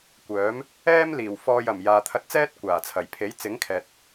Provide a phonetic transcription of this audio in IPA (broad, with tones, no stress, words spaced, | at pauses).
kʷœː˨˥m | ɛː˥mliː˨˩wfɔː˧jɐ˨˩m jaː˨t̪ʰɐ˧t̚t͡sɛː˥t̚ kʷaː˨˩t͡sʰɐ˨˩jpʰe˨˥j t͡sɪ˨˥ŋkʰɛː˨t̚